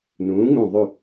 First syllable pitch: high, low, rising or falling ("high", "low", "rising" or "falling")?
rising